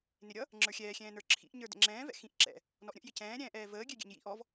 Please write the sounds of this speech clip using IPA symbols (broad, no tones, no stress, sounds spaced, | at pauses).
n ɪ ɾʲ ʌ | ŋ͡ǁ ə˞ xʲ ɛː xʲ ɛ̃ː n ə˞ ǁʰ ḭ ʔ ɲ ə˞ d ɛ̰ ŋ͡ǁ ɛ̃ː v ɛ̰ x ĩ ʔ ǁ ɛ̰ | n ɔ ʔ ɾʲ ə̃ ʔ j ɪ c ɛ̃ː ɾʲ ɛ̃ː ʔ ɛː v əː ɡʲ ɛ ɡʲ ɛ̰ ɲ j ḭ ʔ ɔ v